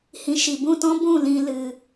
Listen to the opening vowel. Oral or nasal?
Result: nasal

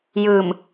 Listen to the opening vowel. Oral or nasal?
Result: oral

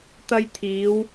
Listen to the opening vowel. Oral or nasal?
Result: oral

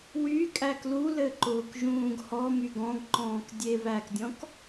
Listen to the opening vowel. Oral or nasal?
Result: oral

